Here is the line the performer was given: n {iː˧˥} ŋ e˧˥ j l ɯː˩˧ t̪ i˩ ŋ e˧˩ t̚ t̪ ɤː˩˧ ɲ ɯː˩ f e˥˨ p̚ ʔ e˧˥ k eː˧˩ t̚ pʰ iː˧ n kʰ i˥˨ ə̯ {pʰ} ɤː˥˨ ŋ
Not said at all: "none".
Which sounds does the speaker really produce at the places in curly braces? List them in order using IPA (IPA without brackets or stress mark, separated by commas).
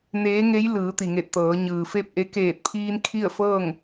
eː˧˥, f